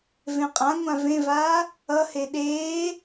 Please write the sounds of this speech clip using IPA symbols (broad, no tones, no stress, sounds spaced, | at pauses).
v ẽ qʼ ã ŋʷ ã v ẽ v aː | ʌ h e ɗ eː